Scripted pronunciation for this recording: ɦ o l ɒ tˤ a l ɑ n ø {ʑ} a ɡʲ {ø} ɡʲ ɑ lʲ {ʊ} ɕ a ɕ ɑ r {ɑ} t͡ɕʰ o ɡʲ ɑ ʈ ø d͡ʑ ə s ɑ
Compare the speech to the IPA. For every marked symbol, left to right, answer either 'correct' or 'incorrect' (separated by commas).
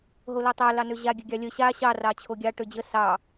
correct, incorrect, incorrect, correct